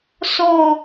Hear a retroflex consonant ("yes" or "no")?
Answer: no